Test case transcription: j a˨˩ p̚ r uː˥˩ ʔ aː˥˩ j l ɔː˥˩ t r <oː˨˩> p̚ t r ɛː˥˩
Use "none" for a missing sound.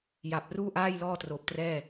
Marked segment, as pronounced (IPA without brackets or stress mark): oː˨˩